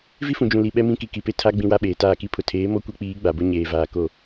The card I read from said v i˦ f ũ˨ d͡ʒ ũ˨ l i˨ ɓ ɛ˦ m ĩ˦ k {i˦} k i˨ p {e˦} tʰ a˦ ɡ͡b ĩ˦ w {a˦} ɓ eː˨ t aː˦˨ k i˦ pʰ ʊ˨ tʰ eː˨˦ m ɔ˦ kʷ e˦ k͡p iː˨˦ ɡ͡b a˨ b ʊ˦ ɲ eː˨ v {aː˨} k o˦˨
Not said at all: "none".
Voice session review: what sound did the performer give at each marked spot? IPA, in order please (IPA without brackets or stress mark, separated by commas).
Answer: i˨, e˦, a˦, aː˨